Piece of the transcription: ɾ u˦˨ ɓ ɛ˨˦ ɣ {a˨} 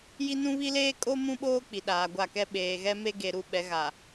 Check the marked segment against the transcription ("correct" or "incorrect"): correct